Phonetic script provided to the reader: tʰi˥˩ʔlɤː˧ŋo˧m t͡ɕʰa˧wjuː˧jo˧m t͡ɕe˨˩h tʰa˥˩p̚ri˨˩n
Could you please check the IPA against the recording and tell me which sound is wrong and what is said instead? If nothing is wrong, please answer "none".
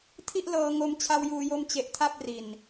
h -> ʔ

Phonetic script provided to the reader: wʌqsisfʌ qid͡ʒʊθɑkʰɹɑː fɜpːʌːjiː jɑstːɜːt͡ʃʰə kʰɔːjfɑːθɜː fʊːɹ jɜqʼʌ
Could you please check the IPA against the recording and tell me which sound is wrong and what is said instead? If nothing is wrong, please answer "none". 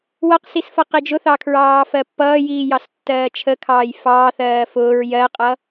ɔː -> ɑː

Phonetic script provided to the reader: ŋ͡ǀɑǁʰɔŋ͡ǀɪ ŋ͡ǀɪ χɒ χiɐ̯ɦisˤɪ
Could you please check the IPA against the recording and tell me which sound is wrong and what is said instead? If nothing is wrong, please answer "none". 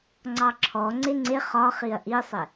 ɦ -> ʔ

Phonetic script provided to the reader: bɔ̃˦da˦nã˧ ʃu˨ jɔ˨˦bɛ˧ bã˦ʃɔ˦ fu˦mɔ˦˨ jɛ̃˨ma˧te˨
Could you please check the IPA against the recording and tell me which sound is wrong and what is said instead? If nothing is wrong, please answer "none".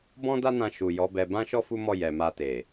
ɛ̃˨ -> ɛ˨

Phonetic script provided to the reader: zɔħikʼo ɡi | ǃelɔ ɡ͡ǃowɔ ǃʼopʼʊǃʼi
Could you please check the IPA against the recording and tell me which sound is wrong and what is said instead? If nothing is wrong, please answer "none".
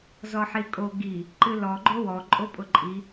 e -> ɨ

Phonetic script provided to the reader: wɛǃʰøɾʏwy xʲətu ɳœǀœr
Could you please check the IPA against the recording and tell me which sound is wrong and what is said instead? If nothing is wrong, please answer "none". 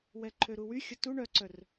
ʏ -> u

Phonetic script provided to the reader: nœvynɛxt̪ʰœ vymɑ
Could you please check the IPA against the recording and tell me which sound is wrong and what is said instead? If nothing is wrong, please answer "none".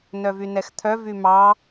none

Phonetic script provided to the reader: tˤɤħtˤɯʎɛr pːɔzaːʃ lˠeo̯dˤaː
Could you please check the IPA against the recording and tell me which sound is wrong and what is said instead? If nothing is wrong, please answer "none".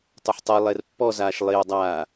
ʎ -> lˠ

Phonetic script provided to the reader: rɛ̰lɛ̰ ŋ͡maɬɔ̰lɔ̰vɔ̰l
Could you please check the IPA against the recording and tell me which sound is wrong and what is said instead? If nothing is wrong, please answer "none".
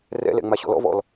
ɬ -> ɕ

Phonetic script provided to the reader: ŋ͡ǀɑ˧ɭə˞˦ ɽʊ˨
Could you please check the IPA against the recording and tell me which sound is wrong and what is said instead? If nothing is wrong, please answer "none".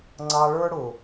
none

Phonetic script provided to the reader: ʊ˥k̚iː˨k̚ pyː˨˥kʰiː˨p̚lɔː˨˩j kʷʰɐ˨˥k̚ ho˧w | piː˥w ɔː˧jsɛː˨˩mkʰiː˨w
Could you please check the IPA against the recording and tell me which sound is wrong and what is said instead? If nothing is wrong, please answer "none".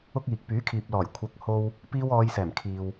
none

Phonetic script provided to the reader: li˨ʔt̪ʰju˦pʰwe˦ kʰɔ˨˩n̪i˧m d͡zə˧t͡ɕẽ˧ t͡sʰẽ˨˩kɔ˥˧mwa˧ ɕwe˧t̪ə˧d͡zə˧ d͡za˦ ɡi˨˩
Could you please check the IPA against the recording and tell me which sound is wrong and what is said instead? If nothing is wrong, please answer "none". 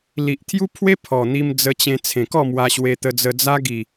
kʰ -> pʰ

